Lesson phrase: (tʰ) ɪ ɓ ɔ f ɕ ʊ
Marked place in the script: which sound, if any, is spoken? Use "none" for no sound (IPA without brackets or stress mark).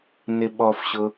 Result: n